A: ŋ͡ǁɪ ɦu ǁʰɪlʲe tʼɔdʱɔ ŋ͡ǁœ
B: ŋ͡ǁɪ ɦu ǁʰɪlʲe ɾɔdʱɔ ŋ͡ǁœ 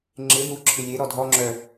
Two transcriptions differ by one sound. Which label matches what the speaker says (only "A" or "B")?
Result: B